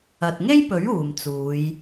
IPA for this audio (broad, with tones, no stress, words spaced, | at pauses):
ɐ˨t̚ŋe˥jpɵ˨˥ɥ uː˨mt͡suː˨˧j